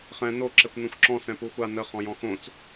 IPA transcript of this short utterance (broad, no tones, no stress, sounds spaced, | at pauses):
χ ɛ̃ n o ǁ ɛ kʷ n õ xʷ ǁ ɔ̃ s ɛ̃ p u xʷ a n ə χ ɔ̃ j ɔ̃ x õ t͡s